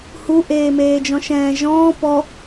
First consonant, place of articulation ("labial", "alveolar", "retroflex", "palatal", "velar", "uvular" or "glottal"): glottal